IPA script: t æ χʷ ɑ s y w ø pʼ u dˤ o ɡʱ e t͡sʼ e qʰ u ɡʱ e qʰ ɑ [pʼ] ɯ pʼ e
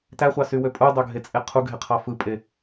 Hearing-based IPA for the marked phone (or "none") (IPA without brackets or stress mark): f